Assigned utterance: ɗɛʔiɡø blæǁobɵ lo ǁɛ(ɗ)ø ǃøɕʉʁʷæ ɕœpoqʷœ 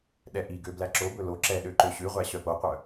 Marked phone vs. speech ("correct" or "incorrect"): correct